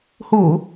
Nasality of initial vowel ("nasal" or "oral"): oral